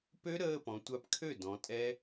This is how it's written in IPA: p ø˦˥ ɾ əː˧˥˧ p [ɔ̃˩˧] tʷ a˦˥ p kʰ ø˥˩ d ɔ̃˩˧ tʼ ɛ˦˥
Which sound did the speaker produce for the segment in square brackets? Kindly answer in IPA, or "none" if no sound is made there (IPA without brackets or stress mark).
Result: ɔ̃˩˧